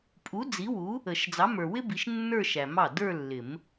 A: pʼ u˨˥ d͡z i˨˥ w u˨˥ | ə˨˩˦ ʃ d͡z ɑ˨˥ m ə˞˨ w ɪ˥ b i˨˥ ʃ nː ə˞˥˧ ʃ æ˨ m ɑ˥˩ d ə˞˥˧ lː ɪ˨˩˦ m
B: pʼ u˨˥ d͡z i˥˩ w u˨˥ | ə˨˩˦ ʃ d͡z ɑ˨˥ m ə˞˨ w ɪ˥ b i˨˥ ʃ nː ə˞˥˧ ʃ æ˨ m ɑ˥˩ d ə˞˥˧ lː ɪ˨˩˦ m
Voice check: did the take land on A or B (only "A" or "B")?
A